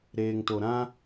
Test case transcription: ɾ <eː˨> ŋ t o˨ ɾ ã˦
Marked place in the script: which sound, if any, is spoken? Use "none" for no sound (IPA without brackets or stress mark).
eː˨